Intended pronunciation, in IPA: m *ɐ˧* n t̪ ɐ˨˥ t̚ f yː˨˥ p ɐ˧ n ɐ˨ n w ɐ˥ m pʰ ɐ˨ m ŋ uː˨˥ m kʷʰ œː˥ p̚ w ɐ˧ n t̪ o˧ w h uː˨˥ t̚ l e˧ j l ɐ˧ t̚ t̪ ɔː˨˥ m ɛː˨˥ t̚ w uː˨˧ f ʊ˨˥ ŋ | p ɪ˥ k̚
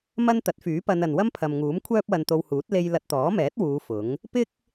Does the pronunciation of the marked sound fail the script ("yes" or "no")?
yes